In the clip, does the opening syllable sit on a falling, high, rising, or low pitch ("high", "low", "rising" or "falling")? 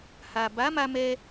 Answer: low